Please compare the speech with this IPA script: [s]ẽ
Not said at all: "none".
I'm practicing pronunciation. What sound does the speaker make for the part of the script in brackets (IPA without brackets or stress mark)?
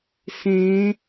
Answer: s